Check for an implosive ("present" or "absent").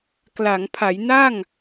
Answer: absent